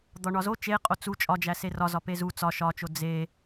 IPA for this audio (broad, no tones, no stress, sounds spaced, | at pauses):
d̪ ɒ ɳ ɒ z o t͡ʃ e qʼ o t͡s u t͡ʃʼ ɒ d͡ʒ æ s e r ɒ z ɒ p e z u t͡s ɒ ʃ ɒ t͡ʃ o d͡z e